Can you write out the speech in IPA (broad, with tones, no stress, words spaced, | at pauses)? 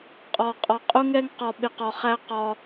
qʼɒ˨qʼɒ˨ qʼʊ˦ŋɛ˦ŋqɒ˧ ɓɪ˧qɒ˧χæ˦ qɒ˧